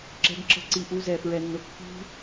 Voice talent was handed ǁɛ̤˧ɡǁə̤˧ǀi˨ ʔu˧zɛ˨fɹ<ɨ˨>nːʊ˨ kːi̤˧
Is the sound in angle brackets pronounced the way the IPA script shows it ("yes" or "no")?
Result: no